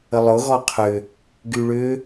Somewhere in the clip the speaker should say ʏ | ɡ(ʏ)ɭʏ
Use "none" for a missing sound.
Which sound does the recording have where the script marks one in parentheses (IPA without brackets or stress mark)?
y